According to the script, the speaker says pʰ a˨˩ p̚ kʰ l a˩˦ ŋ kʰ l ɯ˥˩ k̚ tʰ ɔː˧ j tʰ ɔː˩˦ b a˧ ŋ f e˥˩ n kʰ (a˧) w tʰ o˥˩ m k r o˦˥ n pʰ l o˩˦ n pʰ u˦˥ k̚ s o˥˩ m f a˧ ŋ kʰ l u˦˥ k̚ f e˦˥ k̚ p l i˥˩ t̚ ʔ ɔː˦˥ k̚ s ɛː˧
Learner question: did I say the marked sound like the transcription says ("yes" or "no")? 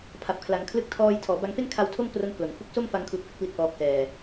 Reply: yes